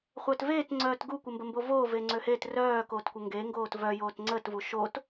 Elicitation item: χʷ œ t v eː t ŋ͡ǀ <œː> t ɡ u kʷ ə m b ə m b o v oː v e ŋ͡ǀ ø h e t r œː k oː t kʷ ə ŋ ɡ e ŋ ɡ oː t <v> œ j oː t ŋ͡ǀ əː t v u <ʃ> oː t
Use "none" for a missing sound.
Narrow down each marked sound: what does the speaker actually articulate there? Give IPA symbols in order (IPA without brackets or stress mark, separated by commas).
œː, v, ʃ